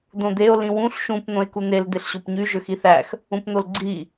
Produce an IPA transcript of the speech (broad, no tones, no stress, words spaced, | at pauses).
d̪õd̪eo̯ lĩwũɬ ʃũp n̪õe̯kun̪el d̪eɬɕopɲy ʒøxiθæx | ũpn̪olɡ͡ǀi